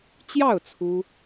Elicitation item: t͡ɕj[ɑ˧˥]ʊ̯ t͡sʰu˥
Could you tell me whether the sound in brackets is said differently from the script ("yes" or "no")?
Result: yes